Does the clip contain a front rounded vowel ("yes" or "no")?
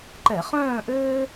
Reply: yes